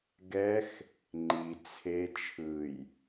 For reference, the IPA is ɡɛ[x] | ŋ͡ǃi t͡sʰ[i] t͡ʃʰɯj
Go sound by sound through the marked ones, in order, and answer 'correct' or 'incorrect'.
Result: correct, incorrect: e

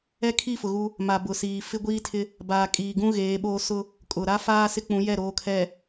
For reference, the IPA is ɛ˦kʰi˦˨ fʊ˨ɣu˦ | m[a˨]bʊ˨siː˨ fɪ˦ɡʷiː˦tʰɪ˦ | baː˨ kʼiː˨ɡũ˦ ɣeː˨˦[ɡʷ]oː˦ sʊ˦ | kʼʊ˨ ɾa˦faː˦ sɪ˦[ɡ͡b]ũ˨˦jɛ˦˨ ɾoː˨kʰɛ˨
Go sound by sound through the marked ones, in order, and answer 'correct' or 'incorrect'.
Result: correct, incorrect: ɓ, incorrect: k͡p

